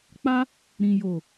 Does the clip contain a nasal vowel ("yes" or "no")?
yes